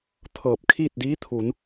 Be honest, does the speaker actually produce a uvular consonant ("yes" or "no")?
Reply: no